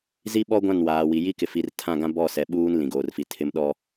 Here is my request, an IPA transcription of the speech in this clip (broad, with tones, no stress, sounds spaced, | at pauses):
z i˦ ɓ ɔ˦ ɡʷ ã˦˨ n w aː˨ w i˨ j i˦ k ɪ˨ f i˨ r tʰ ã˦˨ ɡ ã˦ b ɔ˦˨ s ɛ˨ ɓ uː˦ n l ĩ˨ ɡ oː˨ r f i˨ tʰ ɪ˦ m ɗ ɔ˦